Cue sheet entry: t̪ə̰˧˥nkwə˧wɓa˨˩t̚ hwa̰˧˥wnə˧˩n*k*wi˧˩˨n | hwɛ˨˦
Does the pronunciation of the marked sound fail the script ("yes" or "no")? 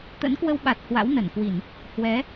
no